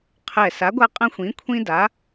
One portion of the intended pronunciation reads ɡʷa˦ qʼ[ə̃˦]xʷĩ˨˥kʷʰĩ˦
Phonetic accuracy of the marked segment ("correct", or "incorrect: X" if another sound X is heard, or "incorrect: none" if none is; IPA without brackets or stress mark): incorrect: ɐ̃˦